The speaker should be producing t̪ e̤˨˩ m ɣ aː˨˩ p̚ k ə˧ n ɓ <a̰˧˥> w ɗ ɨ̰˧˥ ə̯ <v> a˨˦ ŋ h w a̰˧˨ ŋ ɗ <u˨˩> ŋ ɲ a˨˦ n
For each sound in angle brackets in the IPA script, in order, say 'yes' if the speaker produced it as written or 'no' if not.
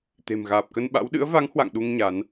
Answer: yes, yes, no

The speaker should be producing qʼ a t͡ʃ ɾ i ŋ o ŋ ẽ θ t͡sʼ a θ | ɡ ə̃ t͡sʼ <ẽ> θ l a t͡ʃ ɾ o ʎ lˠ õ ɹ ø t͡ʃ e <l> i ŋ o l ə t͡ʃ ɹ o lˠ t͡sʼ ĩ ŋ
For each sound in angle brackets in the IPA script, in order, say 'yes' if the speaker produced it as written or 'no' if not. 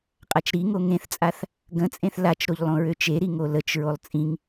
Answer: yes, no

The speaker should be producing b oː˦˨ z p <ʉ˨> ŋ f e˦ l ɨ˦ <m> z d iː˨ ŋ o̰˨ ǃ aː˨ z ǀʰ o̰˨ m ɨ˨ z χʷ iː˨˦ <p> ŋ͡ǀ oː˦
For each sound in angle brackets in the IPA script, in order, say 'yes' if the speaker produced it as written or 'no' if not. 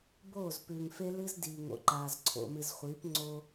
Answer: yes, no, yes

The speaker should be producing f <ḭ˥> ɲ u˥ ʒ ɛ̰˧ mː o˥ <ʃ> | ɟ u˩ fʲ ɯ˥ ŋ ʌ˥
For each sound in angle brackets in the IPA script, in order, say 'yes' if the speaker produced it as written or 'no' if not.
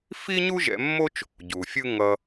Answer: no, no

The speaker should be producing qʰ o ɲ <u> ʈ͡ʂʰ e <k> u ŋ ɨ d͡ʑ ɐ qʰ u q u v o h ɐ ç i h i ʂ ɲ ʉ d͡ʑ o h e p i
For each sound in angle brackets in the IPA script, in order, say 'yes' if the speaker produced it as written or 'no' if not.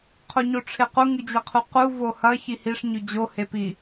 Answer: no, no

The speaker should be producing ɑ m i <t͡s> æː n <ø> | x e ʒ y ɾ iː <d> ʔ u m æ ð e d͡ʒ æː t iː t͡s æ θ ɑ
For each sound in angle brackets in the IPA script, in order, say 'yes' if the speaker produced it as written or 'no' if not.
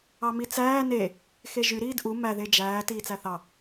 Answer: yes, no, yes

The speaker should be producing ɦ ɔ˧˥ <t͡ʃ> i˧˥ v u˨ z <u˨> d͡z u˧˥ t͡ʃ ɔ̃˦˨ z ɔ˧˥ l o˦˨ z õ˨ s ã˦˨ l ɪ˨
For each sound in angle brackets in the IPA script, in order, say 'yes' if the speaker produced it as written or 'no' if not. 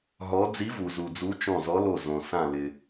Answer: no, yes

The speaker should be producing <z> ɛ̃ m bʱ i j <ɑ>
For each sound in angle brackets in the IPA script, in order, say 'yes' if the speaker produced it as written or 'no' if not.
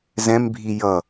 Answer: yes, no

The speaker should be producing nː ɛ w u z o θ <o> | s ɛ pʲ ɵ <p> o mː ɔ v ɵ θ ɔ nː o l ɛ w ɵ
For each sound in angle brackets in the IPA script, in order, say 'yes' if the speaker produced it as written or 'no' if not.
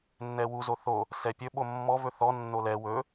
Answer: yes, no

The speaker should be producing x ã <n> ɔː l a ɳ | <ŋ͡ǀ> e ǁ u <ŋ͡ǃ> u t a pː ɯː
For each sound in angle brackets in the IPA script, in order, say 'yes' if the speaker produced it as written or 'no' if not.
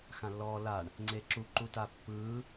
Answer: no, yes, no

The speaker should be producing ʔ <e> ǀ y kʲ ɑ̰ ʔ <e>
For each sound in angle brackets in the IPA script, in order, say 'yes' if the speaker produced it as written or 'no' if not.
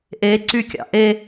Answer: yes, yes

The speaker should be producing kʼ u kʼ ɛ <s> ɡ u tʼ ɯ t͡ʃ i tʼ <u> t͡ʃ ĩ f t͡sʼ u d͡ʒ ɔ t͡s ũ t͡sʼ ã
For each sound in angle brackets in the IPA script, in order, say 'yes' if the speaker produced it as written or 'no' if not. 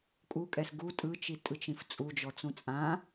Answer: yes, no

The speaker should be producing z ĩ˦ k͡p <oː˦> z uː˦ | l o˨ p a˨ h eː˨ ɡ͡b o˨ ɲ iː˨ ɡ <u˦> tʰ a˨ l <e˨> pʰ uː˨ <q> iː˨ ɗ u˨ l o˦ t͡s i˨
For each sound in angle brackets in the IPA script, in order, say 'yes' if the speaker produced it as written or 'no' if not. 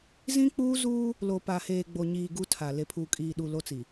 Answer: no, yes, yes, no

